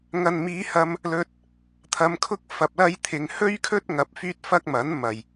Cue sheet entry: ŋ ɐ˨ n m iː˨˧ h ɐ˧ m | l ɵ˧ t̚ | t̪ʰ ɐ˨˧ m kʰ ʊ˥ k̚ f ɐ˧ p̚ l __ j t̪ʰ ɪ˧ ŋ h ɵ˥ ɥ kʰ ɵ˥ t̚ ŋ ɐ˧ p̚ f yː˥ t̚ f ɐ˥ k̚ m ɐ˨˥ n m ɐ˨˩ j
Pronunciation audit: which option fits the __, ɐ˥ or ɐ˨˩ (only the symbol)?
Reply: ɐ˥